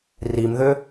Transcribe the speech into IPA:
r i m ð ʏ

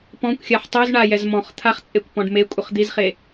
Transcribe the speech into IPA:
p ɔ̃ kʷ xʲ a ħ tˤ o z ɳ a j ɛ z m ɔ̃ χ t̪ʰ a χ t͡sʼ e kʷ p ɔ̃ ɖ m e kʷʼ ʌ χ d̪ i z χ e

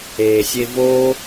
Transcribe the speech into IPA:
eː sʲ e v o

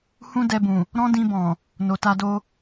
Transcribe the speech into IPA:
h ũ˦ d ɛ˧ b ũ˨ | ɾ ɔ̃˦ d ĩ˧ b ɔ̃˨ | n o˨ t a˧ d o˧

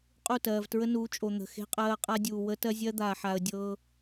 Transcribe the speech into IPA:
qʼ u˦˨ t ɜː˨ v t ɹ ə˦ n uː˨˦ t͡ʃʼ o˨ n̪ ə̤˨ x e̤˦ qʼ ɜː˦ qʼ a˦ dʲ uː˨ w ə˦ t ɜ˦ zʲ ɜ˦ d̪ aː˨ ħ a˨ ə̯ dʲ ɤː˦

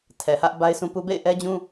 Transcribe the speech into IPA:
tʰ ɛ˨ h ä˦ ʔ b a˦ ɪ̯ sʰ ũ˦ p u˦ b ḛ˦˨ ɪ̯ ʔ ɛ˦ d͡ʑ ũ˦

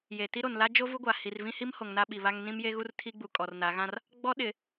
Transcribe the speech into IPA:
j e˨ t i˦ ɾ o˨ n l a˦ d͡ʒ o˦ v u˦ ɡʷ a˨ h i˨ r v ĩ˦ h i˦ m h o˨ ŋ n a˦ ɓ i˨ β a˦ ŋ n ĩ˦ m j e˦ ɣ u˦ r tʰ i˦ ɡ͡b u˨ kʼ ɔ˨ r n a˨˦ ɣ ã˦ r | ɡ͡b ɔ˦ ɗ ɪ˨

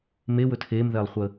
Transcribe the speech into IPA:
m e w ɵ tʰ e m ð ɛ lˠ χʷ ə

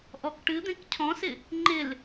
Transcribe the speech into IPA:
ʔ ɔ k ʈ ɨ d̪ ẽ k cʰ ɔ̃ s ɪ | ŋ͡ǃ ɪ l

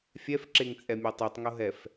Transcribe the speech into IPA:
fʲ ɛ f ǁ e ŋ t͡sʼ ɛ mʲ e tˤ i tˤ ŋ o ɦ ɛ f

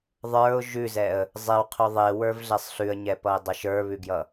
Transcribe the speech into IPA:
ðˤ ə˞ ʊ̯ ʒ ʉ z ɛ ə̯ | zˤ e w qʰ ʉ ðˤ e w ə˞ v ɮ ɛ sˤ ɬ ʉ ə̯ ɲ ɛ p ʌ ɪ̯ dˤ ɛ ʃ ə˞ β ʉ ɡ j ʌ

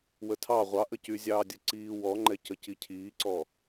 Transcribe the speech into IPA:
w ə tʰ ɑ ʁʷ ɑ ʔ ə c y zʲ ɑː dʲ ə ǀ iː w ɔ ŋ͡ǃ ɛ c ə c i cʰ iː ǀ ɔ

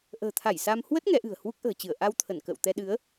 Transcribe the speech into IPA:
ʔ ə̤ː˨˩ t̪ʰ a˧˩ j s a˧ m h w ə˦˥ t̚ ŋ ɛ˨˦ ʔ ɨ̤˨˩ ə̯ h w u˦˥ k̚ ʔ ə̤ː˨˩ t͡ɕ ɨ˧˩ ə̯ ʔ a˧ w t̪ʰ ə˧˩ n k ə̰ː˧˨ w t̪ ɛ˧ ɗ ɨ˨˦ ə̯

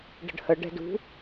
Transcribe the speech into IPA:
ɖ ə̤ ɖ h ə ɖ ɛ̤ d ṳ

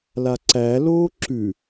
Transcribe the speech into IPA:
l a ǀ æ l oː ǁ ʉ

